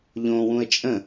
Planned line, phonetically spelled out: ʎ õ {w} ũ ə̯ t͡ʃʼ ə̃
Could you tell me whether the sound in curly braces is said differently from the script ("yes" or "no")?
no